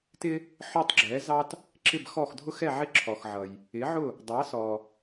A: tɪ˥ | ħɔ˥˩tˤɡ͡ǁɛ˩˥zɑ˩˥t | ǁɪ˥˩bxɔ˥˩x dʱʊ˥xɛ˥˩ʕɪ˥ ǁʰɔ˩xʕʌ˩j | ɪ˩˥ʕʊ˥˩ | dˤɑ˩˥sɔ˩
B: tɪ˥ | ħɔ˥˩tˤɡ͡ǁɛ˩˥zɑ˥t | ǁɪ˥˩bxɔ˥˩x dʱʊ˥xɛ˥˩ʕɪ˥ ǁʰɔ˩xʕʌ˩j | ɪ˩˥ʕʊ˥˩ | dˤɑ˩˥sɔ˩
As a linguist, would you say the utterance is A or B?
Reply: B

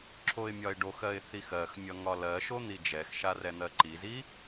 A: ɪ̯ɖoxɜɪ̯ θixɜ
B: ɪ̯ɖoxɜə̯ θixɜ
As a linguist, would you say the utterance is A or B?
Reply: A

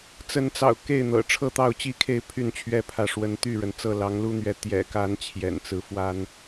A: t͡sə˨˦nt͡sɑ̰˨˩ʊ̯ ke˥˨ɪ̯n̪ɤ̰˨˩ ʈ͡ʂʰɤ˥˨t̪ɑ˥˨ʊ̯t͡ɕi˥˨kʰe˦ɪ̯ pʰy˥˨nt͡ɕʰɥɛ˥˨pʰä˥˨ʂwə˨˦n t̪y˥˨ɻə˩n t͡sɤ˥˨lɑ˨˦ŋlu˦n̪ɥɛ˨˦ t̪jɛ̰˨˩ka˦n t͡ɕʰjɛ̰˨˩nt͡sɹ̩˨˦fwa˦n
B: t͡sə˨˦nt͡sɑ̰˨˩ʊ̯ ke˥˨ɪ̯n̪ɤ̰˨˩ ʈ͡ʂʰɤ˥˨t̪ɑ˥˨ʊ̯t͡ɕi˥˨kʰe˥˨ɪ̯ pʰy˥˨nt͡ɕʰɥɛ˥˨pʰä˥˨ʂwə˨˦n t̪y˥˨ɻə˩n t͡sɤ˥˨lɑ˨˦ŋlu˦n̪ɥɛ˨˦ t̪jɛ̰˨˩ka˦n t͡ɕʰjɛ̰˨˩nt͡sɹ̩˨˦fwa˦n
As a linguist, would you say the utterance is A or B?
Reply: B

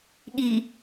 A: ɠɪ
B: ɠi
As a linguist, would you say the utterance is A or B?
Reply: B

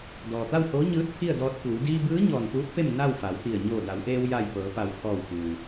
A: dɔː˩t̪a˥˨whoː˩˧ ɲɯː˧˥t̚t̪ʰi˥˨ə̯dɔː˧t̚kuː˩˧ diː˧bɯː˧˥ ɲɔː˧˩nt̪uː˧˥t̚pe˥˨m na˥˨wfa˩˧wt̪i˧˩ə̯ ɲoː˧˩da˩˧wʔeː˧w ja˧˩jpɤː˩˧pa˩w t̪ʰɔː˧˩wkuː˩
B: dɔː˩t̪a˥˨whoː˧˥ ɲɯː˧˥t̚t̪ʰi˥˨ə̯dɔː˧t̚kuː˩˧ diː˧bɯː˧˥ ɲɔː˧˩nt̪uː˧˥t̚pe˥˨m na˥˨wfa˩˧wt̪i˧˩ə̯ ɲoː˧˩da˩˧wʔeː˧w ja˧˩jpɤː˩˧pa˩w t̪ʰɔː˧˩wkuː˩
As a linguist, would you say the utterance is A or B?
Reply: B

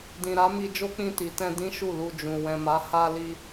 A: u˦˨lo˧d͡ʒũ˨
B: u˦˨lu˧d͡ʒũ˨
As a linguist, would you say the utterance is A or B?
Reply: B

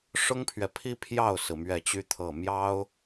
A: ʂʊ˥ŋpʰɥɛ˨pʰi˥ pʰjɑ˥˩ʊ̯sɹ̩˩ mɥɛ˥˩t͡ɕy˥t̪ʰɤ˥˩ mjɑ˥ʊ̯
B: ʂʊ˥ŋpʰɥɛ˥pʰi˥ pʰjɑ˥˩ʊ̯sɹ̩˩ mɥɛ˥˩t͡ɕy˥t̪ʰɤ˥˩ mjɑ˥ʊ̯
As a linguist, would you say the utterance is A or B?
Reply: A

